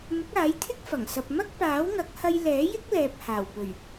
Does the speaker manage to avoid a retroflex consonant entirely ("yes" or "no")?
yes